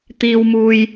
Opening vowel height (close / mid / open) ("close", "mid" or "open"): close